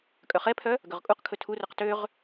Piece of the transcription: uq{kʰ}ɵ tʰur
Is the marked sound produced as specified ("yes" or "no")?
yes